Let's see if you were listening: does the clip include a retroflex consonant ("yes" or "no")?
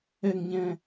no